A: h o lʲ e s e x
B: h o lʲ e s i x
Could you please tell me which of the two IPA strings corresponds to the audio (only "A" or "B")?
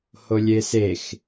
A